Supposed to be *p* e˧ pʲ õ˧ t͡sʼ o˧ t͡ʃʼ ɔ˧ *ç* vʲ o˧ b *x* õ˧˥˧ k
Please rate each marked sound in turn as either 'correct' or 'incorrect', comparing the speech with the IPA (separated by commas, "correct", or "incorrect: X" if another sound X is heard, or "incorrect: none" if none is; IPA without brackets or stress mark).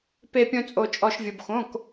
correct, incorrect: ʃ, correct